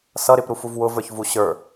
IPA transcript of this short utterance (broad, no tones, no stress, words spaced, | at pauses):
sʌ ɾɪpɾufuv wʊvə˞çvu ɕə˞